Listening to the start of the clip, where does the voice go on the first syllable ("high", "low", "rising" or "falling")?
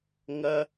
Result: high